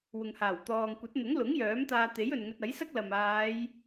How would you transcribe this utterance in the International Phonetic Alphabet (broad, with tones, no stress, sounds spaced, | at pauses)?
w ʊ˨ ŋ h aː˨˩ w t̪ ɔː˨ ŋ kʷ ɐ˨˥ t̚ n̪ ʊ˨˥ ŋ l ʊ˨˥ ŋ j œː˨˥ m t̪ aː˧ t̪ e˨˥ j ɵ˨ n ŋ ɵ˧ t̚ ɐ˨˥ j s ɐ˥ k̚ l ɐ˨ m aː˨˧ j